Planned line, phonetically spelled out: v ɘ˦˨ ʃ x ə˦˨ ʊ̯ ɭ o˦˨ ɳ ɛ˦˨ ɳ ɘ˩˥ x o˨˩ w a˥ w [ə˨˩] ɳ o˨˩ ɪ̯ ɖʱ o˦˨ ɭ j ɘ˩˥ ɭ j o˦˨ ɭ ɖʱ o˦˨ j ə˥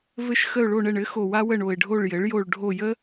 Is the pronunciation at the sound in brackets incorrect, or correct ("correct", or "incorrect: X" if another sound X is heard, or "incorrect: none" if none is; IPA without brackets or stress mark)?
incorrect: ə˦˨